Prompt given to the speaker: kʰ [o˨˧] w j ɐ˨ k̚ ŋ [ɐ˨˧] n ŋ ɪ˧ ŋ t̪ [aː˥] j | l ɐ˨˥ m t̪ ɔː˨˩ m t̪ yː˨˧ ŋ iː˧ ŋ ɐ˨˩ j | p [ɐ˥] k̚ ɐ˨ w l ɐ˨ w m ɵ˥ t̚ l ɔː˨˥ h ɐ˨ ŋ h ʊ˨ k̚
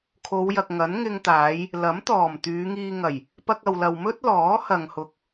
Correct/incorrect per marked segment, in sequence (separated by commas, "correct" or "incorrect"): correct, incorrect, incorrect, incorrect